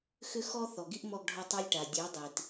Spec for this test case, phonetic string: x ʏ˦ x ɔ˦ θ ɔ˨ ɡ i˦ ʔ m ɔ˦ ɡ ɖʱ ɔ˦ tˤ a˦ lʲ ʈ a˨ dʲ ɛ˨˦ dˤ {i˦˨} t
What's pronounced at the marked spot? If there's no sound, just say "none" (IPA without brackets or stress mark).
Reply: i˨